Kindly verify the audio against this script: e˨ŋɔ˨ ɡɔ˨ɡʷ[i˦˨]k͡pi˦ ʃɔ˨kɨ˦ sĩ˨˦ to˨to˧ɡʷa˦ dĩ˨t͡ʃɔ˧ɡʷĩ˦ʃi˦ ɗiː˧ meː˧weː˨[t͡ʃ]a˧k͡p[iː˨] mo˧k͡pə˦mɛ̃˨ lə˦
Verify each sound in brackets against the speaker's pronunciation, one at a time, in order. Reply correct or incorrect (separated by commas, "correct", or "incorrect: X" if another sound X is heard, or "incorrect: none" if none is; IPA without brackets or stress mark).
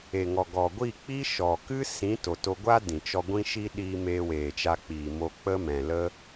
correct, correct, correct